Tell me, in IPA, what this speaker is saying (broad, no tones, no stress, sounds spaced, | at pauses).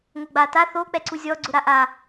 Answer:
ŋ o ɡ͡b a t a θ o k͡p ɛ ǀ u zʲ ɔ ɡ͡ǀ ʊ ɾ a ʔ a